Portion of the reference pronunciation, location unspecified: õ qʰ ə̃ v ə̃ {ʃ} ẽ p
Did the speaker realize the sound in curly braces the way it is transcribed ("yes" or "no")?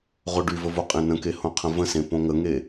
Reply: no